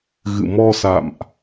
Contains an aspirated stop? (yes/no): no